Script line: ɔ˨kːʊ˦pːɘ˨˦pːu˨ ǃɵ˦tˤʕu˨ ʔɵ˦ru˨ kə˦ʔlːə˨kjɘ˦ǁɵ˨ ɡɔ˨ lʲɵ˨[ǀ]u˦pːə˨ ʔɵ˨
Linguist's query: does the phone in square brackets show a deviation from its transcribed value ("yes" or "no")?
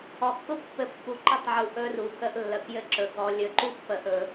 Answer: yes